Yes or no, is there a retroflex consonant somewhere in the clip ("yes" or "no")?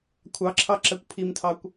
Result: no